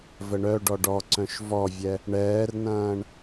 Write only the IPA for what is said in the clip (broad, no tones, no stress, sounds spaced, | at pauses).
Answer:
v ə ɳ œ ɖ ɔ ɖ ɔ ǀ œ̃ ʃ v ɔ vʲ ɛ | ɳ ɛː r n ɐ̃ː ɳ